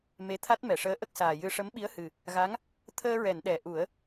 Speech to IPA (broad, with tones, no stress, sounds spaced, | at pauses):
m e˧˥ t̪ʰ a˦˥ t̚ m ɛ˨˩˨ ʂ əː˧˥ ʔ ə˦˥ k̚ s aː˨˩ j ɨ˧ ʂ ə˧˥ m ɓ i˧˥ ə̯ h ɨ˨˩ | ɣ a˧˥ ŋ | t̪ʰ əː˧ ɹ ɛ˨˩˨ n ɗ ɛ˨˩˨ ʔ u˨˩˦ ə̯